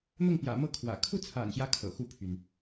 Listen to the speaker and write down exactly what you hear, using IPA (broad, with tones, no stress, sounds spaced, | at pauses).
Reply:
n̪ ʊ˥˨ ŋ p j ä̰˨˩ m ɤ˥˨ kʰ w ä̰˨˩ kʰ u˥˨ t͡sʰ a̰˨˩ n ɕ j ä˦ kʰ ɤ̰˨˩ x u˥˨ pʰ y˩ n